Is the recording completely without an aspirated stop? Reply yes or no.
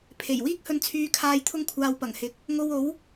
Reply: no